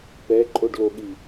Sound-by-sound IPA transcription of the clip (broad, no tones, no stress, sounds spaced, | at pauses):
p ɛ ǃʼ o ɖ l o ɠ i